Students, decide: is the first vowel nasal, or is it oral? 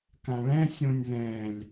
nasal